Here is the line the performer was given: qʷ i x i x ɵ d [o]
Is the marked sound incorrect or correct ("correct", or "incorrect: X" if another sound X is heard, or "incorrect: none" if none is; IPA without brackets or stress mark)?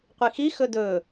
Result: incorrect: ɵ